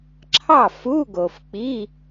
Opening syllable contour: falling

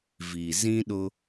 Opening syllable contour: low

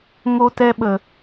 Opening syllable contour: high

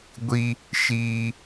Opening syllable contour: high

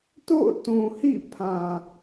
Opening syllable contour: falling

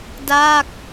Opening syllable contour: falling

